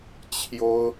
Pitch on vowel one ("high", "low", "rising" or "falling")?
high